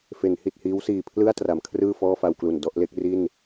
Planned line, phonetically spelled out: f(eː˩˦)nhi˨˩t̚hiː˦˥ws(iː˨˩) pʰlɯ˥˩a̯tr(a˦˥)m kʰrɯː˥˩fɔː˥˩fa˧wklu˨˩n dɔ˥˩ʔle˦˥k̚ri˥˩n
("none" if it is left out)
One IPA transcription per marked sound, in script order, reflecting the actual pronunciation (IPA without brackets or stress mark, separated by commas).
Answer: e˩˦, iː˨˩, a˩˦